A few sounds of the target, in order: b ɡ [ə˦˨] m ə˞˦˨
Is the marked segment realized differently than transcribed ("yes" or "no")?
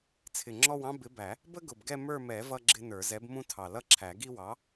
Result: yes